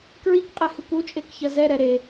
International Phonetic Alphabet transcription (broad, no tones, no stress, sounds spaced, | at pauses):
k ɹ i k qʼ e h ɨ k u t͡ʃʼ e k ç ɐ z ɛ ɾ ɛ ɾ e